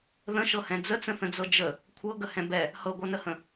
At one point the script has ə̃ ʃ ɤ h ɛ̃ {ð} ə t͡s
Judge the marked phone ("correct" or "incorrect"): incorrect